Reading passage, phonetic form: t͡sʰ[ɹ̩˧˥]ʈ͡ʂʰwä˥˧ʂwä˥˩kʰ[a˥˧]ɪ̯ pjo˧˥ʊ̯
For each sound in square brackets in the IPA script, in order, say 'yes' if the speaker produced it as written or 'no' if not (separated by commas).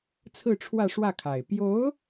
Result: no, no